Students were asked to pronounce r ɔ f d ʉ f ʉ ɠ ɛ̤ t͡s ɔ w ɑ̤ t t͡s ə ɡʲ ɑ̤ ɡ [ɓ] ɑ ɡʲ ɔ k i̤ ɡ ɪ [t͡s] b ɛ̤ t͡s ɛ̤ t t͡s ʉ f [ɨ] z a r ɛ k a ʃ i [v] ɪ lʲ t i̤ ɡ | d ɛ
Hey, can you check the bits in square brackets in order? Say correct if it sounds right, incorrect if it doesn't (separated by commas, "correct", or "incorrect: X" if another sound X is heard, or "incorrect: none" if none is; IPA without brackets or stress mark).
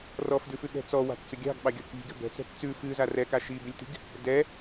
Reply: correct, incorrect: none, correct, incorrect: b